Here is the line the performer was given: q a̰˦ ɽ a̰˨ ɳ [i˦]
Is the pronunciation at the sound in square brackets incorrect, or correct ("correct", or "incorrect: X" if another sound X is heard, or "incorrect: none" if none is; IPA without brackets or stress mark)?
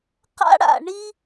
correct